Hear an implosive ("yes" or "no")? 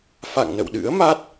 yes